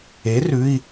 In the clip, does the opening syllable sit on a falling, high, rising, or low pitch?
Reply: rising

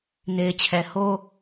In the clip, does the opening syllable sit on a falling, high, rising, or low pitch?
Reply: low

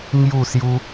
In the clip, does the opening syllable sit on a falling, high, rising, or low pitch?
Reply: falling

